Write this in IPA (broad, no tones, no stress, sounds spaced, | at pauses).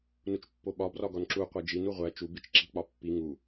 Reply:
n u t͡ʃ pː o ɓ ɒ b r ɒ ɡ ɒ n ǁ u qʷ e d͡ʒ i n u ʁʷ æ t͡ʃ u b i t͡ʃ ǁ i̤ k͡p ɒ pː i ŋ u